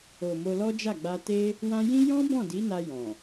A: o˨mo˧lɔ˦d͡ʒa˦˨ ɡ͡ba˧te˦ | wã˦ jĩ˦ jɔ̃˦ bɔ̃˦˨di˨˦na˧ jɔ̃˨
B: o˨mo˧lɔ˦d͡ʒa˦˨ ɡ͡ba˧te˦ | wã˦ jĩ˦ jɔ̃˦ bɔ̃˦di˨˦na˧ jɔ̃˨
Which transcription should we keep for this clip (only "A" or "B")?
A